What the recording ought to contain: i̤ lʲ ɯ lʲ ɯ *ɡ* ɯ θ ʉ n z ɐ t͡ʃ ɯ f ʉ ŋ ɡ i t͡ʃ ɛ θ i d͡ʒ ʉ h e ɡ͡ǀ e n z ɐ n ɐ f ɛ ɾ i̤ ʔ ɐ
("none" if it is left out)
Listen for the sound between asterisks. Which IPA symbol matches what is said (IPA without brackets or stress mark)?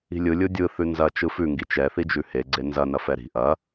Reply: dʲ